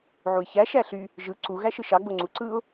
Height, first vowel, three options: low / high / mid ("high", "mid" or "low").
high